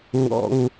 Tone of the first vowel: low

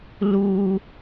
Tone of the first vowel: high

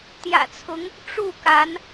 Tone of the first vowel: low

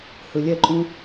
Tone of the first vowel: low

